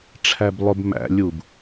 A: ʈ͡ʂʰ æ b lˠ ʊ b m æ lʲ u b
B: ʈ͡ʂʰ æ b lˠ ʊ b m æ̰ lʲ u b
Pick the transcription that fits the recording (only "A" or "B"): B